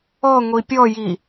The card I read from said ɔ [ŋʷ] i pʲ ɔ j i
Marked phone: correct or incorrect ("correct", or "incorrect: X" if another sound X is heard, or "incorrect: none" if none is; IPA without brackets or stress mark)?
correct